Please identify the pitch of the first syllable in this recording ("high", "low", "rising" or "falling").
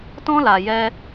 high